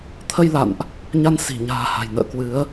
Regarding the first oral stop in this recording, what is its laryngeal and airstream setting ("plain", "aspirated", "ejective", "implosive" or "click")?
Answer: aspirated